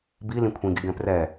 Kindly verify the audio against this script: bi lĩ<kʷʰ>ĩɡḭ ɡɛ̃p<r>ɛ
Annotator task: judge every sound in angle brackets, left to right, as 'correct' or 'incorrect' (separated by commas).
correct, correct